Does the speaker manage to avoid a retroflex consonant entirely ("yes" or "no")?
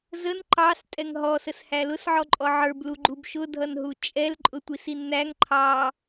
yes